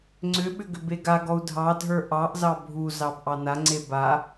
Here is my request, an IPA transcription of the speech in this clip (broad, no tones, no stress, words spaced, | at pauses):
ŋ͡ǀʏɓʏ ɡʏbeɡaɡɔu̯ dʱɑdʱə˞ ʔɑʔzɑ bʱu zɑbʔɑnaŋ͡ǀe ba